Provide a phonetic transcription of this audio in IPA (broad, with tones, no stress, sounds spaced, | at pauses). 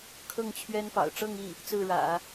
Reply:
kʰ ɤ˥˩ ŋ t͡ɕʰ ɥ ɛ˥ n p ɑ̰˨˩ ʊ̯ ʈ͡ʂ ɤ˥˧ ŋ i˥˩ | t͡s ɹ̩˥˩ ɻ ä̰˨˩˦